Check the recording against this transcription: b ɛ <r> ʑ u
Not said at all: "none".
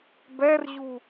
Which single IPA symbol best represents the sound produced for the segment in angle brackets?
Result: r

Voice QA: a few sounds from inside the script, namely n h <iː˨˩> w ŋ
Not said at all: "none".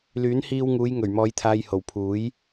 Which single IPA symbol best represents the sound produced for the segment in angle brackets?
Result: iː˧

